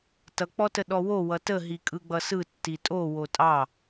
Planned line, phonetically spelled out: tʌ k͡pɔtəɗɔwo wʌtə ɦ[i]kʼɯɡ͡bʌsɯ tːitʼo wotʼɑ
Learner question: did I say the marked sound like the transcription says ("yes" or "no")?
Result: yes